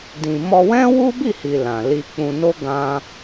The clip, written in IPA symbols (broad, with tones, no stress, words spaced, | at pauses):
dĩ˨mɔ˧ wɛ̃˦wu˦bi˦˨hi˨ lã˨li˧k͡pũ˧no˦ ɡã˦